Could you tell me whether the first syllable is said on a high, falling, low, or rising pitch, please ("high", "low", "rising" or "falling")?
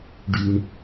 low